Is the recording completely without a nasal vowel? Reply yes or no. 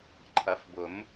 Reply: yes